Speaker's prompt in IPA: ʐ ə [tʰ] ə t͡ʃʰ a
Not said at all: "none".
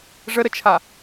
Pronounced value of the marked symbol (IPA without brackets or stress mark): ɾ